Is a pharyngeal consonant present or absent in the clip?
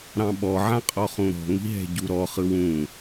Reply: present